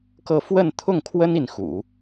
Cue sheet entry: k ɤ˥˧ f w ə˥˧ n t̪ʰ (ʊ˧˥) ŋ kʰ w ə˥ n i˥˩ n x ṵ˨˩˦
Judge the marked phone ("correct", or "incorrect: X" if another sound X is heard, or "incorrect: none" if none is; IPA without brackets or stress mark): incorrect: ʊ˥˩